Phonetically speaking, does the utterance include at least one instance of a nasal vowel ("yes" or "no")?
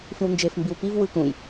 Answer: yes